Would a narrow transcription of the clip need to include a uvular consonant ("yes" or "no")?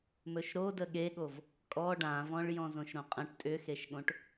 yes